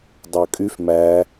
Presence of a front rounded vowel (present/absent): present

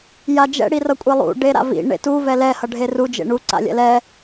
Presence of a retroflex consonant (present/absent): present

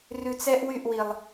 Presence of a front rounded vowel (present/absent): present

